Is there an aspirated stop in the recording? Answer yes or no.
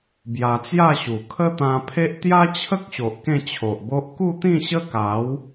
yes